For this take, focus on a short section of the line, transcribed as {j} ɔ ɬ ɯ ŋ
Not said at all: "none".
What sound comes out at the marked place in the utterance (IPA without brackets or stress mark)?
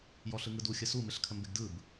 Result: j